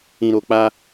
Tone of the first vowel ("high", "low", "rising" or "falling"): low